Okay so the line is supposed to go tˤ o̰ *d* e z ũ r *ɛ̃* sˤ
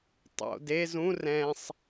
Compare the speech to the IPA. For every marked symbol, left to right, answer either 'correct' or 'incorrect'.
correct, correct

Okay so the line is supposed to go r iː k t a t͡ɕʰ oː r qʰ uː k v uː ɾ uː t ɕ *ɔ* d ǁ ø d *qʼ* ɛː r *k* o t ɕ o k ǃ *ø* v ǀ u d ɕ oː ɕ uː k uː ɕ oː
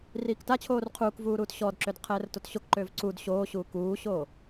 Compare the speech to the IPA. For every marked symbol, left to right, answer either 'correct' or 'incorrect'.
correct, incorrect: qʰ, incorrect: t, incorrect: øː

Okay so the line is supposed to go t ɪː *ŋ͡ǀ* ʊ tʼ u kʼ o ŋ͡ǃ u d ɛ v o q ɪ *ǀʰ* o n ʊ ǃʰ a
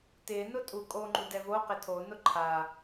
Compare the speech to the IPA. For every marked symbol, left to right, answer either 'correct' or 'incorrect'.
incorrect: n, incorrect: tʰ

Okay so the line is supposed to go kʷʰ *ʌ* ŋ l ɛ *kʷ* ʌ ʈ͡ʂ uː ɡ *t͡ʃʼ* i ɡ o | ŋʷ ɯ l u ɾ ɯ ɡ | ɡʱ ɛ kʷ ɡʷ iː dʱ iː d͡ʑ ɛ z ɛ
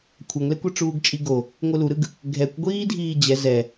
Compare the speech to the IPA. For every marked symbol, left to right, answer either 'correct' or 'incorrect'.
correct, correct, correct

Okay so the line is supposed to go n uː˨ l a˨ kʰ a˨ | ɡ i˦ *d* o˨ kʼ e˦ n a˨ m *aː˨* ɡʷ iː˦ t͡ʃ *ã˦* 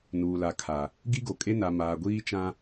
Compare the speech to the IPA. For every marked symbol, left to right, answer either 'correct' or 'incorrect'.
incorrect: ɡ, correct, correct

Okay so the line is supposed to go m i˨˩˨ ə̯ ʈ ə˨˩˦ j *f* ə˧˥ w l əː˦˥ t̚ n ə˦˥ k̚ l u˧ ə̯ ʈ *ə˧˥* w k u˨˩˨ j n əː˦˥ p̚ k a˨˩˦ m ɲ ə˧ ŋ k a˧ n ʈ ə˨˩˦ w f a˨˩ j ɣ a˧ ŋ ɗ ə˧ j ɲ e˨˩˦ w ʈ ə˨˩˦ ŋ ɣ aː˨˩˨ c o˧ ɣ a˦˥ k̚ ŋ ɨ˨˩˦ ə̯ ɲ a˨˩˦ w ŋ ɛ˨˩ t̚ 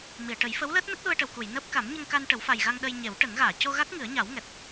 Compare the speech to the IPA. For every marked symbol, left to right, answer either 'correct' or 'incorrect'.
correct, incorrect: ə˨˩

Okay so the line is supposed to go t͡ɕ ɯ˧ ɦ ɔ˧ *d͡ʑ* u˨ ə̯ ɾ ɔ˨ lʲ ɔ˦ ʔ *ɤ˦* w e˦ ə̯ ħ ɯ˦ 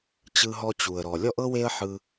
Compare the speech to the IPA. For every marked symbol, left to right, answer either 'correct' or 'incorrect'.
incorrect: t͡ɕ, correct

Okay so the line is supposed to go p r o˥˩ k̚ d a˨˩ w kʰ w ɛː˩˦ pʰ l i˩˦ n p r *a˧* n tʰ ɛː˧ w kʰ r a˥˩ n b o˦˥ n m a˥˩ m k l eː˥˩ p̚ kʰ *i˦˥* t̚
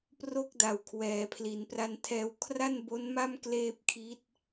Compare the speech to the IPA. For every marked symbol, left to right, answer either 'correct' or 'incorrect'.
correct, correct

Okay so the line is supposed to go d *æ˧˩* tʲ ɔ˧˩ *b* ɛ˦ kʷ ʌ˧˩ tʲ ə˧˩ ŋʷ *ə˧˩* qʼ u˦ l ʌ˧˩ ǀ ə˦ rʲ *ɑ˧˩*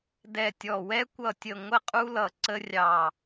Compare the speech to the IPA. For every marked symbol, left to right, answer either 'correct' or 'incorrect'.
incorrect: ɛ˧˩, incorrect: w, incorrect: ə˦, correct

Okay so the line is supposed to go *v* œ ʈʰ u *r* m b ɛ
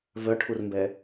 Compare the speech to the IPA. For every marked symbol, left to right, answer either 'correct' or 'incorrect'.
correct, correct

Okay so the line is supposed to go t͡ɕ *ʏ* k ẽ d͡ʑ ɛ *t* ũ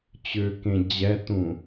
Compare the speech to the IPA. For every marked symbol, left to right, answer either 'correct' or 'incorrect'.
correct, correct

